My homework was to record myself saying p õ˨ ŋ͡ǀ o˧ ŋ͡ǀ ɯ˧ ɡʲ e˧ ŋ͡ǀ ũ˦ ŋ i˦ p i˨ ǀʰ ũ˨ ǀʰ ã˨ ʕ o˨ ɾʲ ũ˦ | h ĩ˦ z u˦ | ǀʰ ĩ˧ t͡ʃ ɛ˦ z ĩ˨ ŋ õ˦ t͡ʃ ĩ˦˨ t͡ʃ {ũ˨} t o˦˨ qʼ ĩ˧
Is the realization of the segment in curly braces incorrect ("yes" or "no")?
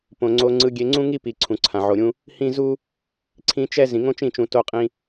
no